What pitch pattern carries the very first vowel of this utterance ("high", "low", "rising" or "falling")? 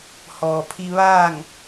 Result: low